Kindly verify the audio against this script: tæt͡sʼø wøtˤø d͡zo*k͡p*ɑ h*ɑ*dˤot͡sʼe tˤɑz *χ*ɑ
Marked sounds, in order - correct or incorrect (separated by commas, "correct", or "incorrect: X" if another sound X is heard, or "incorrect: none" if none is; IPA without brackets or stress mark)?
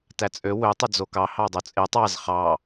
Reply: incorrect: k, correct, correct